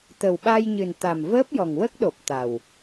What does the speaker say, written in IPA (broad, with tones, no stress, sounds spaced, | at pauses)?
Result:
t̪ ə˨˩ w ɓ a˧ j ɲ ɨ˨˩ n t̪ a˨˩ m v əː˦˥ p̚ j ɔ˨˩ ŋ w ə˦˥ k̚ ɗ o˨˩ p̚ t̪ a˨˩ w